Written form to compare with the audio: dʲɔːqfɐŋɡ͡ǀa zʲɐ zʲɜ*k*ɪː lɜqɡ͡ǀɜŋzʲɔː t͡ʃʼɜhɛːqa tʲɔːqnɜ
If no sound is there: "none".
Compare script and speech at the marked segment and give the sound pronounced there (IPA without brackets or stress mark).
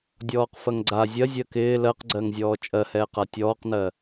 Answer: k